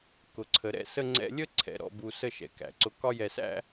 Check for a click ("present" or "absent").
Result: present